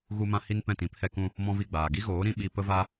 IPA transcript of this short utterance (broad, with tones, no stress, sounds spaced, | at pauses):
ɣ u˧ m ã˧ h i˦ n p ɛ̃˦˨ t ĩ˨˦ p h ɛ˧ k ũ˧ | m ɔ̃˦ v i˦˨ ɡ͡b aː˨ ɡ i˦ ɣ oː˨˦ ɾ ĩ˦ ɓ i˧ p ə˦ v a˦